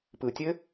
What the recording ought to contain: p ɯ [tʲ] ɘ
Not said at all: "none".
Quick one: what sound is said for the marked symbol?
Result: tʲ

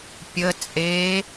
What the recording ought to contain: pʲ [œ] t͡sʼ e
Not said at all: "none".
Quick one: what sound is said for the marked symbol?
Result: ə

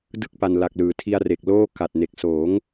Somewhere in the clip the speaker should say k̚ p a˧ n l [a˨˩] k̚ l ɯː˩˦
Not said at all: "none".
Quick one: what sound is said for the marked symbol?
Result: a˨˩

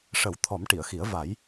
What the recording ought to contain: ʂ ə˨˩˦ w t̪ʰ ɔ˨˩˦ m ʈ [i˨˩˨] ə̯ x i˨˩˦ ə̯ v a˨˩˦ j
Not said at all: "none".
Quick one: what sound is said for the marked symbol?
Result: i˨˩˨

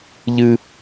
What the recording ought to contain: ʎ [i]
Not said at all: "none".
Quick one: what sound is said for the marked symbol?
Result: ɨ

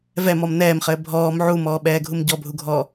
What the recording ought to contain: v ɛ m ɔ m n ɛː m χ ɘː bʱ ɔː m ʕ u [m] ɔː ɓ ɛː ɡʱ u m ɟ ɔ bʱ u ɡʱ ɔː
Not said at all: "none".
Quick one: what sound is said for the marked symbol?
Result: m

